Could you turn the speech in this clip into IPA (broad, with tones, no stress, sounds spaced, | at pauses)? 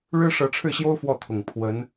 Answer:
ɻ ɻ̩˥ ʂ ɤ˧˥ ʈ͡ʂʰ ɻ̩˥˩ ɕ j o˥ ʊ̯ f w ɔ˥˩ t̪ʰ ʊ˨˩ ŋ pʰ w ə˧˥ n